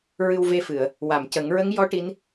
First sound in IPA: ɹ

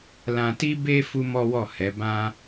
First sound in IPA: l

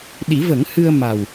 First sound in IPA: ɗ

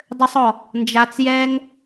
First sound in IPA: dˤ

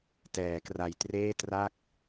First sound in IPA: t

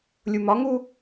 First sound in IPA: lʲ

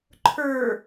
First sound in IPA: ǃʰ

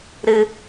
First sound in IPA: ɾ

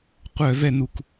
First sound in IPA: qʷ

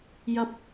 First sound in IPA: j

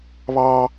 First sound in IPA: β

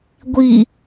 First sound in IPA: ɡʷ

